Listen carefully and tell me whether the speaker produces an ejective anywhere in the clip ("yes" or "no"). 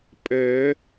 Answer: yes